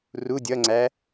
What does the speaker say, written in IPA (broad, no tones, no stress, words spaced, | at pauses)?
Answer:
ru dʲʌŋ͡ǀæ